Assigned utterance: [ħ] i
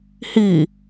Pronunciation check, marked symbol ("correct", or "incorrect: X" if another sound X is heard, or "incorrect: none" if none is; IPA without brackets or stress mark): incorrect: h